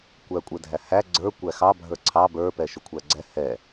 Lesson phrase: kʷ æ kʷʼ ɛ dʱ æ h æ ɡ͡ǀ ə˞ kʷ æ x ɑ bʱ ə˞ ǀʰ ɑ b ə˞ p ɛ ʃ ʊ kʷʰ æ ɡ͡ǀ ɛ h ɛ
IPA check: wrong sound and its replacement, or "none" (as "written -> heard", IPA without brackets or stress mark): none